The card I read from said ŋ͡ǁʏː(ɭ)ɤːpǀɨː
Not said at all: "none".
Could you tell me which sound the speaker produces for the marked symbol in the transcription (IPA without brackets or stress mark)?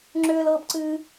l